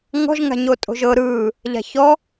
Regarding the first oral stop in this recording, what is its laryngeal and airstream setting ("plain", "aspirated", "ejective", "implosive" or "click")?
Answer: ejective